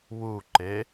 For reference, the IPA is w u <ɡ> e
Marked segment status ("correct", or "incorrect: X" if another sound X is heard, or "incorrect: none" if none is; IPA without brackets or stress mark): incorrect: ǃ